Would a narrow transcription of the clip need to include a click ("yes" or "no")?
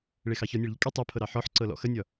yes